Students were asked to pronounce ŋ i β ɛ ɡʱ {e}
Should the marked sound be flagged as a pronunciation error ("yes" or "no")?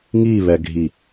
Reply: yes